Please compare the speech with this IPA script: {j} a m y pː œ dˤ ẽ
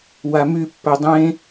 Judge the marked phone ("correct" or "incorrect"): incorrect